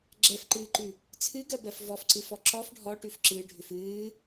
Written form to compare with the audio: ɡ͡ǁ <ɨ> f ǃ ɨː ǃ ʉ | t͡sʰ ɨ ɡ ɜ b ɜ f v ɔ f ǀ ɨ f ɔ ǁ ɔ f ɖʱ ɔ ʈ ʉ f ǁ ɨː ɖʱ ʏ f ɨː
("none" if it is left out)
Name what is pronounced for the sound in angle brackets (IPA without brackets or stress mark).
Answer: ɛ